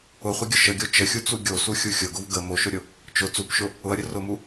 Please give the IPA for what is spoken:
ʊ χʷ ə ɡʲ ʊ ʃ ə ɡʲ o t͡ʃ ə xʲ u t͡s u ɡʲ o s u xʲ u xʲ ʊ ɡ ʊ v ɡ ə m o ʃ ʊ ɾʲ ʊ | t͡ʃ ʊ t͡s u p ʃ ʊ | ʊ ɐ̯ ɾʲ ə r ʊ m u

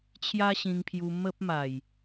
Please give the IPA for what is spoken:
t͡ɕʰ j a˦ ɕ ĩ˧ ŋ pʰ j u˧ m ə˦ p̚ m a˨˩ j

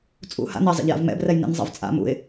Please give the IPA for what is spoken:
t͡sʼ ṵ h a̰ n ɛ zˤ ɛ̰ ʎ j a̰ v m ɛ̰ b r ɛ j n ḭ n zˤ a̰ v t͡sʼ a̰ m ṵ ɪ̯

